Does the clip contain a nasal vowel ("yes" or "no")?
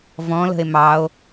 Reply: yes